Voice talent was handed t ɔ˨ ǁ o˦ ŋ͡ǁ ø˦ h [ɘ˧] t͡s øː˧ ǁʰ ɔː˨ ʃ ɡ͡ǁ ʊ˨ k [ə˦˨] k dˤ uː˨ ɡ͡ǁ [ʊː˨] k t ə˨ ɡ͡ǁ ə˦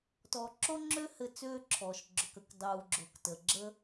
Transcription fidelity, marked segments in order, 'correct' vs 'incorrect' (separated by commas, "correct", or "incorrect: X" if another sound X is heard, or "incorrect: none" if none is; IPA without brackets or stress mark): correct, incorrect: ə˨, correct